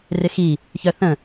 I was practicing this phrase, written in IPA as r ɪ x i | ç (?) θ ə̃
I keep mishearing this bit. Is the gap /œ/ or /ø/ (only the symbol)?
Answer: œ